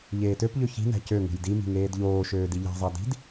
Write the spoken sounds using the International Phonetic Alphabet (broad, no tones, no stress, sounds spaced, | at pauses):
ʎ eː t ø p ʎ ø ç i̤ n æ̤ c ø ŋ ṳ j d i m i̤ ŋ eː d ʎ oː ʃ øː d i ʎ æ̤ zˤ æ d i̤ d